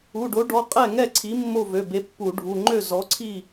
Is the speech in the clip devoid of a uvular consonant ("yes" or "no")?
no